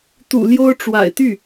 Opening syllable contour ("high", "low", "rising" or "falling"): low